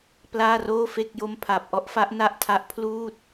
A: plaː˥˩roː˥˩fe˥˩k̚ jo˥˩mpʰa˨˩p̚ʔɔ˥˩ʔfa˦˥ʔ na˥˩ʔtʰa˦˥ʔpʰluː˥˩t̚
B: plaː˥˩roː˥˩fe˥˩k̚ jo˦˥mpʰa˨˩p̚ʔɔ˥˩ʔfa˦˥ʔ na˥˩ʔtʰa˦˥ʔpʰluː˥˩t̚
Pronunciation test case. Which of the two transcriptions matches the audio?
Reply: B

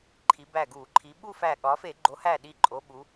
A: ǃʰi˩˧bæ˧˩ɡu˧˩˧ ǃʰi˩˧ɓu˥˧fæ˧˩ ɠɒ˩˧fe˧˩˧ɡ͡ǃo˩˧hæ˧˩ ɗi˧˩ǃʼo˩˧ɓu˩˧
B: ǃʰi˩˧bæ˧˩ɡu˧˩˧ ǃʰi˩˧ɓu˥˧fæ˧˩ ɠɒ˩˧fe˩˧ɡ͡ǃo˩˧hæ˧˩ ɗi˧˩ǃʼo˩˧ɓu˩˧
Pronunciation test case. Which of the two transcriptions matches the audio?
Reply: A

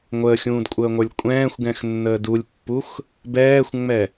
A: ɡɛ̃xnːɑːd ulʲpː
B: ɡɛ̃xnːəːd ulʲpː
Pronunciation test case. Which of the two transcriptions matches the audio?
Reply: B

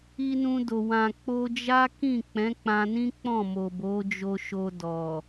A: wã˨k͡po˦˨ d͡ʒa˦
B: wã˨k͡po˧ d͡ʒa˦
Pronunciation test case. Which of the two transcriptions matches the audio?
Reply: B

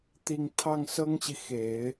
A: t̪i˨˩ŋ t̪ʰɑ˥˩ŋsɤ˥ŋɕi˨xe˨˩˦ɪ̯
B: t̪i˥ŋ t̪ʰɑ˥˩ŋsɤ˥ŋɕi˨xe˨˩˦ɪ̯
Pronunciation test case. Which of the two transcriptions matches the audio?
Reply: A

